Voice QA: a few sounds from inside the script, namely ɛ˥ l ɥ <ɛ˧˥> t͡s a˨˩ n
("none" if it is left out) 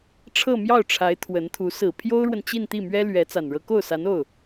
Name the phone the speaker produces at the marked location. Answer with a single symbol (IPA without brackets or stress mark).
ɛ˧˥